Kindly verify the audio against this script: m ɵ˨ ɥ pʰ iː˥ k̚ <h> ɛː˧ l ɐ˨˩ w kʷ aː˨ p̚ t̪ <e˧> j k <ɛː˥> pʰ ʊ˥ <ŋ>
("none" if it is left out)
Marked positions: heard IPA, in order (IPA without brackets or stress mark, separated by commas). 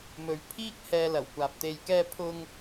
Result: h, e˧, ɛː˥, ŋ